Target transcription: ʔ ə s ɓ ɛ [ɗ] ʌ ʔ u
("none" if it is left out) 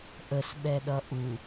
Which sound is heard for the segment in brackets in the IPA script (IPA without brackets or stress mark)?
ɗ